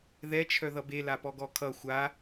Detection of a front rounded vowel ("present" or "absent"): present